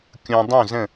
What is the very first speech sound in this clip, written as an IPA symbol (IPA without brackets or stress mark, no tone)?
kʲ